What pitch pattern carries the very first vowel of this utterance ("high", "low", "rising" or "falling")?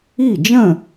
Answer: falling